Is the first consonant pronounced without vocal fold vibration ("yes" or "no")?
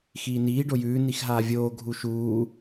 yes